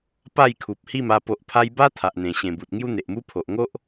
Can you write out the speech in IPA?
p a˥˧ j kʰ u˨ p̚ h i˥˧ m a˧ p o˨ ʔ pʰ a˧ j b a˦ t̪ʰ a˨ ʔ n̪ ẽ˨˩ ɕ ẽ˨˩ b u˨ t̚ ŋ j u˦ n̪ e˨ ʔ m u˦ pʰ o˨ ʔ ŋ o˦ ʔ

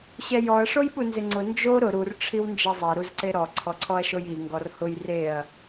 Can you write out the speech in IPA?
ɕ ɛ j ɔ ɐ̯ ʂ o j ɓ u n z ɪ ŋ͡ǀ ʊ n d͡ʒ o ɾ ʊ ɾ u r ʈ͡ʂʰ i w n d͡ʒ ɛ zˤ e ɾ u z ǀ e ɾ ɔ ǀʰ ɔ ǀʰ ɔ ɐ̯ ʃ o j i ŋ ɡ ɔ r h ʊ j r e ɐ̯

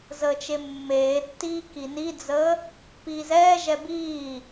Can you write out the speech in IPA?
z əː t͡ʃ e mː eː tː iː k i n i d͡z əː | p iː z ɛː ʒ ɛ b iː

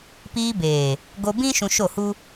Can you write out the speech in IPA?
p iː˧ b eː˨ | ɡ o˧ b ĩ˦ ʃ ũ˧ ʃ o˦˨ h u˦

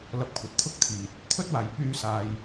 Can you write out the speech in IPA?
l ɐ˧ p̚ kʷʰ ɐ˨ t̚ t̪ʰ ʊ˥ k̚ t̪ʰ iː˨ t̚ | t̪ʰ ɵ˥ t̚ w aː˨ j p yː˥ s aː˧ j

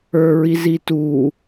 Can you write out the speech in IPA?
ə˞ ɹ i z i t uː

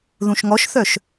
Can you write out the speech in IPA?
ð ũ ʃ ŋ ɔ ʃ θ œ ʃ

